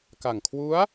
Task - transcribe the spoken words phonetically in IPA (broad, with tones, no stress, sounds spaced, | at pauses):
k a˨˩ ŋ kʰ w u˦˥ a̯